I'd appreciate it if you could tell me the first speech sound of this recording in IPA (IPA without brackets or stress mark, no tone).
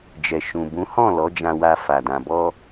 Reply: d͡ʒ